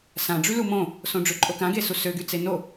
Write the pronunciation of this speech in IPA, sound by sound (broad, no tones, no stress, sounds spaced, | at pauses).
s ã ɖ͡ʐ y l u m õ | s õ ɖ͡ʐ ø ǃʼ o k ã ɡ e s u s ø ɡ y t͡s e n o